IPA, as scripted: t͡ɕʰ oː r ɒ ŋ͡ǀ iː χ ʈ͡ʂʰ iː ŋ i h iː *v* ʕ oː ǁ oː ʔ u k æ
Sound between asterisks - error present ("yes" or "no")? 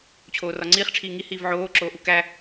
no